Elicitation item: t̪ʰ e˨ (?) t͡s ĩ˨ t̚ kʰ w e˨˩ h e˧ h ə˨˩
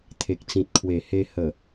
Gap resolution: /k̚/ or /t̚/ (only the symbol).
k̚